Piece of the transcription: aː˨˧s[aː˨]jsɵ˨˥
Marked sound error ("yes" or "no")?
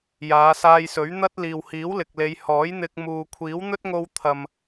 yes